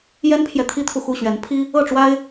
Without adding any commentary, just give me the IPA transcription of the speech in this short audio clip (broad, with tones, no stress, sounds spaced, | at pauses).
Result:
j ɛ˦ n pʰ j ɛ˨ t̪ʰ i˦ t̪ʰ u˨ x u˥˨ ɕ ɥ ɛ˨˦ n pʰ i˦ | ɤ˥˨ ʈ͡ʂ w a˦ ɪ̯